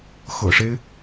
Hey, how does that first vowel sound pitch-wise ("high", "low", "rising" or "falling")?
low